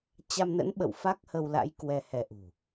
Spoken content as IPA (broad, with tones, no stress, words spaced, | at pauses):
t͡ɕa˧mnə̰˧˥nɓə̰˧˨w fa˦˥k̚hə˧wla̰˧˥j kwɛ˧hɛ˧ʔṳ˨˩